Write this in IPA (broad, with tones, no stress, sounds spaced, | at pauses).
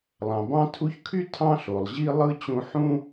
lˠ ɑ̃˩ b ɑ̃˦ tʰ u˦ ç kʰ y˥ tʰ ɑ̃˥ ɬ o˩ lˠ ʑ i˥ lˠ ɯ˥ t͡ɕ ũ˦ ħ ũ˥